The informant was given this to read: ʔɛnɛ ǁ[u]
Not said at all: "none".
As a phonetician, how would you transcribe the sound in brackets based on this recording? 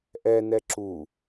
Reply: u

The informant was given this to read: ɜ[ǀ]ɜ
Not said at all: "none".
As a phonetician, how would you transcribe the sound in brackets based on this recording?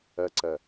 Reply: ǀ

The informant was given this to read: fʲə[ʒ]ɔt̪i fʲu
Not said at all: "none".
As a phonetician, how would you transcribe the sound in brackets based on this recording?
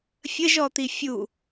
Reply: ʒ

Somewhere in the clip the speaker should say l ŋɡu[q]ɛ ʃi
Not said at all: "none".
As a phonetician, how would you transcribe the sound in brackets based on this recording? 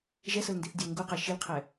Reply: q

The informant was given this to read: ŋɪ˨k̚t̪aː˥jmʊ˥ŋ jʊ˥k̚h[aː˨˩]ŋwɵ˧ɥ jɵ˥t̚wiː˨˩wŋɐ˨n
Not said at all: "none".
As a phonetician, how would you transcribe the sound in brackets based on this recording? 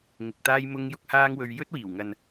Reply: aː˥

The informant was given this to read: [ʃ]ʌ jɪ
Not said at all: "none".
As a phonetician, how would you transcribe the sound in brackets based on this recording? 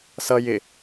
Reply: s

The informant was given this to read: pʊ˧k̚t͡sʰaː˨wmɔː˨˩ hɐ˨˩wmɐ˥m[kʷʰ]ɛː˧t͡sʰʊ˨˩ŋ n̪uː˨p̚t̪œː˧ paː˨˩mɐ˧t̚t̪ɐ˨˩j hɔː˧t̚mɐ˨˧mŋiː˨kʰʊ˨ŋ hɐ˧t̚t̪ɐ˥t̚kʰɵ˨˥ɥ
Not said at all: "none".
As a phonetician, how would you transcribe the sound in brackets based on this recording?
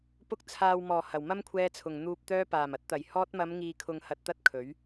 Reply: kʷʰ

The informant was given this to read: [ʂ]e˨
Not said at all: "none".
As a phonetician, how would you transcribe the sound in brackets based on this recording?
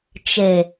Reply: t͡ʃ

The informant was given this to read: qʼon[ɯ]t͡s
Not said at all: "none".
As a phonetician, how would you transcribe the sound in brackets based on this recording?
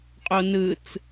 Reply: ɯ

